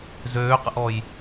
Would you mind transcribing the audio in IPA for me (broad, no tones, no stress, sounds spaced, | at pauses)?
z øː q ə̰ ʔ ɔ j